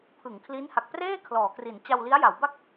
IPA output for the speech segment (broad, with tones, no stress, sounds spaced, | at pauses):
pʰ ɯ˩˦ ŋ kʰ l i˦˥ n h a˨˩ k̚ p r eː˥˩ kʰ l ɔː˩˦ k r i˩˦ n t͡ɕ a˧ w l i˦˥ a̯ j a˩˦ w b a˥˩ k̚